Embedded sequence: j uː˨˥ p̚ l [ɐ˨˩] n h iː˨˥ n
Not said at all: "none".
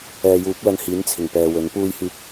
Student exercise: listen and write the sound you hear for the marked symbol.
ɐ˧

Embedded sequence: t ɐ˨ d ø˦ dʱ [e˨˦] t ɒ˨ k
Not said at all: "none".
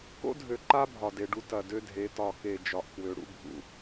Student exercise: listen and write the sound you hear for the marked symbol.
e˨˦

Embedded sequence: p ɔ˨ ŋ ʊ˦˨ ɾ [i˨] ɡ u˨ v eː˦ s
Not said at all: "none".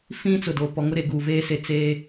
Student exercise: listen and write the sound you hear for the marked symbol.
e˨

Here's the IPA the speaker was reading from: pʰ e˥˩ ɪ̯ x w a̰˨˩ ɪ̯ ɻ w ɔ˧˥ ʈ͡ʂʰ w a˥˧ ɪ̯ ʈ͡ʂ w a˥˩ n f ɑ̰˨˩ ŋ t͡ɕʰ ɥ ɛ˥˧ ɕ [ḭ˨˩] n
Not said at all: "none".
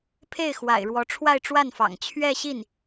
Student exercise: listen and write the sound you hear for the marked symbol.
i˥˩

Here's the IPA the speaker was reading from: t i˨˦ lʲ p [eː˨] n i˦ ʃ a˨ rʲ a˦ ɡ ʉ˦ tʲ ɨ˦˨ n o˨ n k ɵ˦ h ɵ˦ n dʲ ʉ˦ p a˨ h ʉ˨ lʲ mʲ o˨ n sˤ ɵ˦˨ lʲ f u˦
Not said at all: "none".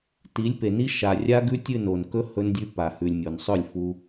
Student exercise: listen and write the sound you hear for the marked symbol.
e˨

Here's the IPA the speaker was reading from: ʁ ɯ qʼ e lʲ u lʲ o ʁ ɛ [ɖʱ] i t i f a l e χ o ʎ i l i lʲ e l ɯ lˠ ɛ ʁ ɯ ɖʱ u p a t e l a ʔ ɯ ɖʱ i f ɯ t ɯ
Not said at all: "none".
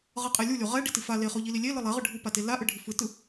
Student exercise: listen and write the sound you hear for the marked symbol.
ɖ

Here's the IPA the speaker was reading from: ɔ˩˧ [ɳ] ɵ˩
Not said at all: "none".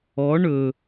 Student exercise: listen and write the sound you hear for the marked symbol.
ɳ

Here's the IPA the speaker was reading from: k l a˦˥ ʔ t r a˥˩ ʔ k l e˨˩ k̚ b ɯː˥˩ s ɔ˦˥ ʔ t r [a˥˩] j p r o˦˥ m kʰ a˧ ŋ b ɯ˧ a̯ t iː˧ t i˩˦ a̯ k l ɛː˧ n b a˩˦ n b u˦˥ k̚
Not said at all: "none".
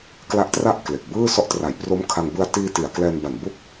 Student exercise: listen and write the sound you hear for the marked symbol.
a˩˦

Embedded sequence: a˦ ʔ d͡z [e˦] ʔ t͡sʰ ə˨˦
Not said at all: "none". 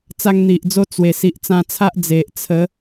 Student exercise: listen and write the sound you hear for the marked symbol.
e˨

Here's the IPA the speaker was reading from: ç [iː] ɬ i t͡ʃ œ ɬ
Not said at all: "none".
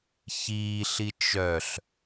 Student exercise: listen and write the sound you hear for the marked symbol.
iː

